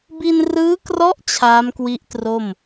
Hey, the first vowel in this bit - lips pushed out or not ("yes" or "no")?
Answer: no